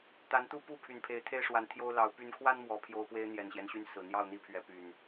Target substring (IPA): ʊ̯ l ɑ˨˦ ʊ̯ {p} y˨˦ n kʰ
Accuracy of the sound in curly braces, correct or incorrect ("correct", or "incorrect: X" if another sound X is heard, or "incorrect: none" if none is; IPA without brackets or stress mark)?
correct